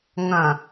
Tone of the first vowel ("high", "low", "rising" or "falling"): low